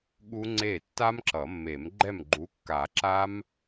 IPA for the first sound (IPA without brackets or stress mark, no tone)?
ɠ